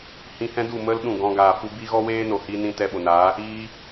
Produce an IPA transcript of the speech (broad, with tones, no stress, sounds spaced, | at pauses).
h ĩ˧ h ɛ̃˦ d u˦˨ m ə˦ l ɗ ũ˦˨ ɡ ɔ̃˧ ɡ aː˨ f u˧ b i˦ ɣ ɔ˦ w eː˦ n o˨ h i˦ n ĩ˦ t ɛ˧ ɓ o˨ n aː˨˦ | iː˧